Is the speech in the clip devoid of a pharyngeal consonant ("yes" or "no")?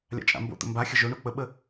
yes